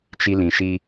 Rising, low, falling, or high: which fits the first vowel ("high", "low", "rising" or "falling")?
high